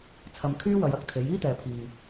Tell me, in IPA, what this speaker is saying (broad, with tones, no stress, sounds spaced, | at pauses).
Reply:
t͡sʰ ɐ˧ m kʰ yː˥ w ɐ˨˧ j ɐ˧ k̚ t̪ʰ e˨˥ j iː˥ t̪ ɛː˨ pʰ iː˨